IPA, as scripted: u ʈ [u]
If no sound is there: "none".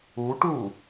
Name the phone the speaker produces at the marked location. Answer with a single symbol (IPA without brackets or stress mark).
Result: u